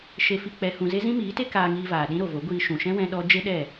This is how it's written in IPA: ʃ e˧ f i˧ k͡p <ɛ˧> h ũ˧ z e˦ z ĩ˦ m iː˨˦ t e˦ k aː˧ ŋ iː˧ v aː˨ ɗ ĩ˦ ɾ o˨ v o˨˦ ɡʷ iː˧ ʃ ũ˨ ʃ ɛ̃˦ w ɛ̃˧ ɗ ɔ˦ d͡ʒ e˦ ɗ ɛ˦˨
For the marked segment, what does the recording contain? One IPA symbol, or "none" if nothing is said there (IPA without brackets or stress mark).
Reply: ɛ˧